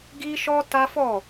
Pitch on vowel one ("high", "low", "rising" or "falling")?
high